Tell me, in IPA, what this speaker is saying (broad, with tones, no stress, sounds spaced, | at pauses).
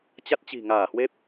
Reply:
t͡ɕ a˦˥ t̚ t͡ɕ i̤˨˩ ŋ aː˧˩ h w e˦˥ p̚